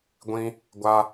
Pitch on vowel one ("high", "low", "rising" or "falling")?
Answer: high